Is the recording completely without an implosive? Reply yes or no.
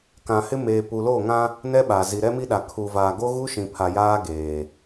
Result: no